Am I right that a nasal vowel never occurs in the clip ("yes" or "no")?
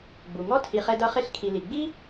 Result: yes